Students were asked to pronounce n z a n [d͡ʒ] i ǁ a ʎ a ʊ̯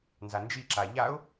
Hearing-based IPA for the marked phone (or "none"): d͡ʒ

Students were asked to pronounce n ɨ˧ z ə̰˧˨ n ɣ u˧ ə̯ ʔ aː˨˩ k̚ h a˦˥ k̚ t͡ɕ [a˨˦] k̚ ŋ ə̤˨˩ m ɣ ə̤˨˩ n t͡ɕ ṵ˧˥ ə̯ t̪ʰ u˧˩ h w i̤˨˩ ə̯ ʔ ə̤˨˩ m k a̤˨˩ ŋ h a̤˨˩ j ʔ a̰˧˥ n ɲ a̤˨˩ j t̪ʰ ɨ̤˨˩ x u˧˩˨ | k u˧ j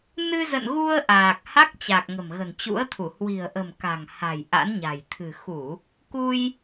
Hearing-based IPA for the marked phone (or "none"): a˨˩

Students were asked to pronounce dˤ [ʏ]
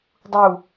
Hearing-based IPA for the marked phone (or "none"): u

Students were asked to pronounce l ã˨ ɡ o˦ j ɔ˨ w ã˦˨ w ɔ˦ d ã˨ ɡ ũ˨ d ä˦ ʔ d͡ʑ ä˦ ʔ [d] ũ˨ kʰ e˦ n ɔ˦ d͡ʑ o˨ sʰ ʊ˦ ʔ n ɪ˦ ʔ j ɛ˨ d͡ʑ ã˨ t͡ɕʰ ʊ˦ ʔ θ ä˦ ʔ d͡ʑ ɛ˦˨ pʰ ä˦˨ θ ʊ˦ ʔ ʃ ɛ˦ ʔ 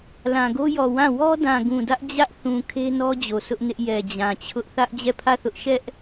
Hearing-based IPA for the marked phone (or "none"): θ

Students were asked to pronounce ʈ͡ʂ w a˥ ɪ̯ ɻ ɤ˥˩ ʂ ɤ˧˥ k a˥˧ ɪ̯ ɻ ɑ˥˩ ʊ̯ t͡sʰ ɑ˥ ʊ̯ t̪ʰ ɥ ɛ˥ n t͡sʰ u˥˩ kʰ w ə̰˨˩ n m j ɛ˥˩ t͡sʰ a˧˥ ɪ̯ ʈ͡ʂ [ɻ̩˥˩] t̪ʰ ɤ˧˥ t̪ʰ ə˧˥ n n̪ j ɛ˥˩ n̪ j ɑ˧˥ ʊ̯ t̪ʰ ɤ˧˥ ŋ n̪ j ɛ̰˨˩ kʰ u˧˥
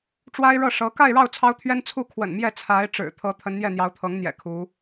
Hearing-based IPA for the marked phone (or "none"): ɻ̩˨˩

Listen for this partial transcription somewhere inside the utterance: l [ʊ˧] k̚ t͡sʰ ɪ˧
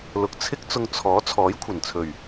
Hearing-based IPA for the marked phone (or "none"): ʊ˧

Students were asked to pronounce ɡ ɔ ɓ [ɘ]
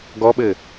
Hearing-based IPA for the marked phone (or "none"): ɘ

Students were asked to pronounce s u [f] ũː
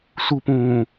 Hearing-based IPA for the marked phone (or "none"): p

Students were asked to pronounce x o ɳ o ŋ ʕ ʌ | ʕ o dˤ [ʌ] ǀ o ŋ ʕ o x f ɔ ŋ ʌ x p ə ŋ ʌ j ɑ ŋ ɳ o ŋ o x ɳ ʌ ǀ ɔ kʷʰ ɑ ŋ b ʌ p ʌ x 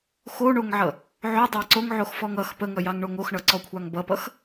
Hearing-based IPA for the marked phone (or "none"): ɑ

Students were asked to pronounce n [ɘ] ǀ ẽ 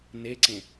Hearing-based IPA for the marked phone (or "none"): e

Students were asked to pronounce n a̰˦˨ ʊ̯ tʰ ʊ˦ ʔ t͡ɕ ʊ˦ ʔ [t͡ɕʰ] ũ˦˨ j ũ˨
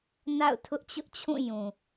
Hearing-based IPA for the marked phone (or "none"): t͡ɕʰ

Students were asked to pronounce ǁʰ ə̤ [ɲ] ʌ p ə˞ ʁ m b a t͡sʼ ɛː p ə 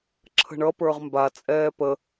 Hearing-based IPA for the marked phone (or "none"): ɳ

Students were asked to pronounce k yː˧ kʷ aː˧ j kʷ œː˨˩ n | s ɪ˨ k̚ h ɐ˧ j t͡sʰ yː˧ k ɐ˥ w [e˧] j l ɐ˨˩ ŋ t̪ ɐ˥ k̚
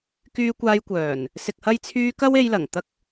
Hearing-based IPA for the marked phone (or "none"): e˧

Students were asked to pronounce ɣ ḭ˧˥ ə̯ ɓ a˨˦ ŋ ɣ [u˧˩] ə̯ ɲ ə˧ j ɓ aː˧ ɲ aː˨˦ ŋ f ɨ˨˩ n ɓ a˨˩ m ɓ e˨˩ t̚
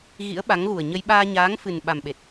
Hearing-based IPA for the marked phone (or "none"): u˨˩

